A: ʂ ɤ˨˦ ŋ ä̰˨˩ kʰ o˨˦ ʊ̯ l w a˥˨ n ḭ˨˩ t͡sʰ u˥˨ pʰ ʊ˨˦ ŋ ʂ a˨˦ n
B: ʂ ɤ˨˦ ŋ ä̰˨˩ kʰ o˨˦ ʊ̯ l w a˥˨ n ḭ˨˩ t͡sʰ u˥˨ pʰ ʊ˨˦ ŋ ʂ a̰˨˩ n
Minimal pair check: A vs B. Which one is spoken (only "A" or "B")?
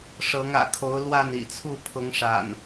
B